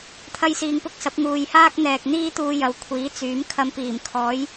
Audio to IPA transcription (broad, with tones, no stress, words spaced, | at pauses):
t̪ʰɐ˥jsiː˧ŋpʊ˥k̚sɐ˨˥p̚ ŋuː˨jhaː˥k̚ n̪ɛː˨k̚n̪iː˥t̪uː˧jɐ˨˥w kʷʰiː˨˥t͡syː˨˥mkʰɐ˧m piː˨˩mkʰɔː˨˥j